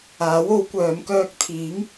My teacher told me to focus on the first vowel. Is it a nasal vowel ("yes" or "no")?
no